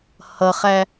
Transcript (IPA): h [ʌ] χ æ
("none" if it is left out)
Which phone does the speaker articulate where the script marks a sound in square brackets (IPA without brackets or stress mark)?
ʌ